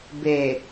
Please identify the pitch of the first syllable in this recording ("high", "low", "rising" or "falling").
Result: low